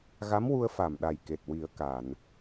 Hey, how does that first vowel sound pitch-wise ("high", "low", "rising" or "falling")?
rising